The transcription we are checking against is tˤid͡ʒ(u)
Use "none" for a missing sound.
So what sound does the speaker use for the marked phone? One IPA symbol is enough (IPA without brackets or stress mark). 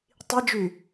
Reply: y